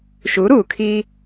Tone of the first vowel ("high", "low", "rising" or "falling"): rising